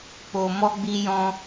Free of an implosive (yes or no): yes